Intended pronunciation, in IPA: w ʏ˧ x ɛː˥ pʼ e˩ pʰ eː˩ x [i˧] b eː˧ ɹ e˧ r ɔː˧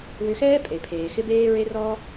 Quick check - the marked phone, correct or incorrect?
incorrect